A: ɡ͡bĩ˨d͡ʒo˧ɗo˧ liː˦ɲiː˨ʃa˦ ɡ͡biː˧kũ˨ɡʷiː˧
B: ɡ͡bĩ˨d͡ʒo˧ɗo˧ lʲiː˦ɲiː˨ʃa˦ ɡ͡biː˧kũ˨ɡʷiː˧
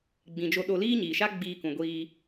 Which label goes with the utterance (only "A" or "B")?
A